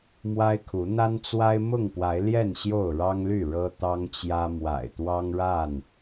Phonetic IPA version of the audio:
m w a˦ ɪ̯ kʰ u˨˦ n̪ a˦ n t͡s w a˦ ɪ̯ m ʊ˥˨ ŋ p w a˨˦ ɪ̯ l j ɛ˥˨ n ɕ j o˥˨ ʊ̯ ɻ ɑ˦ ŋ l y˥˨ ɻ ɤ˦ t̪ ɑ˦ ŋ t͡ɕ j ä˦ m w a̰˨˩ ɪ̯ t̪ w ɑ˦ ŋ ɻ a˥˨ n

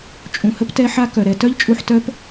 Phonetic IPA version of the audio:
t͡ʃʼ ũ˨ h ə˧ p t ɛ˧ ħ a˧ k œ˨ ɾ ɛ˧ t œ˦ ʎ t͡ʃʼ u˧ ħ t œ˦ p

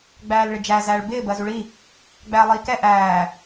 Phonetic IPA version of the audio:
ɡ͡b æː l ɭ ɪ d͡ʒ æ z æː ɭ b ɪː b ɜ z u ɭ i | ɡ͡b æː lˠ iː k ɛ ʔ æː

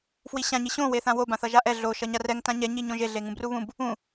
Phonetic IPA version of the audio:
f w i ɕ ã ɲ i ɕ õ w e θ ã w o b ã θ ʌ ʒ a ʔ ɛ ɮ o ʃ ʌ ɲ a r ɛ ŋ t ã ɲ ɛ ɲ i ɲ õ ʒ e ɮ e ŋ ũ b r u β ũ b | ũ

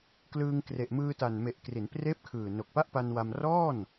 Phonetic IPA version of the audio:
k l ɯː˧ ŋ k r e˨˩ ʔ m ɯː˧ t a˨˩ n m e˨˩ ʔ k r i˩˦ n p r eː˦˥ p̚ kʰ ɯː˨˩ n o˨˩ k̚ p a˥˩ ʔ p a˧ n w a˧ m r ɔː˥˩ n

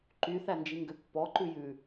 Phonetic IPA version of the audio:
ǃ y θ æ n d͡ʒ i ŋ ɡ ø pː ɔ ǃ ʉ j ʉ

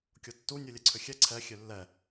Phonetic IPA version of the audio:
kʲ o tː u nʲ u lʲ ɛ ǀʰ ʏ xʲ ɛ ǀʰ ɛ xʲ ø lː ɛ

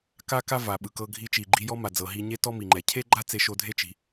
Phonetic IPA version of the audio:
k a˥ k a˥ v a˩ ɓ ɯ˩ k ɤ˧ ɡʱ i˧ t͡ʃ i˩ ɡ͡ǃ i˧ j ɔ˥ m a˩ d͡z ɤ˩ ɦ i˧ ɲ e˥ t ɔ˥ m i˩ ŋ͡ǃ ɛ˩ cʰ e˥ ɡ͡ǃ a˥ t͡s e˧ ʃ o˧ dʱ e˥ t͡ʃ i̤˩

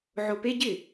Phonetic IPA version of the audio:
ʕ o p e ɟ ɪ

